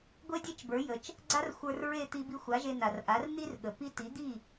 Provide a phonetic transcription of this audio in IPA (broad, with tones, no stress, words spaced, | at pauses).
ɡʷe˥dʲe˥t͡ʃbə˞˩˥jə˩t͡ʃ | ɡ͡ǀa˥rxʷə˞˧rɹe˥˩t̪i˧ bi˧xʷa˩˥ʒe˧ na˩rʔa˩˥rn̪i˥r ɠə˩pi˥ ti˩˥d̪i˥˩